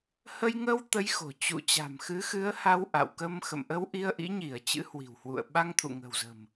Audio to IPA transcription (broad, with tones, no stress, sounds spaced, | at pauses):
h ə˧ j ŋ ə˧ w t̪ ə˨˦ j x o̤˨˩ t͡ɕ ṵ˧˨ t͡ɕ a̤˨˩ m x ɨ˨˦ x ɨ˨˦ ə̯ h a˧ w ʔ a̰˧˨ w k ə˧ m x ə̰˧˨ m ʔ ə˧ w ʔ i˧ ə̯ ʔ ḭ˧˥ ɲ i˧˩ ə̯ t͡ɕ ɨ̰˧˥ h w i̤˨˩ w h w ṵ˧˨ ə̯ ɓ a˧ ŋ t̪ʰ ṵ˧˨ ŋ ə̤˨˩ w z ə̤˨˩ m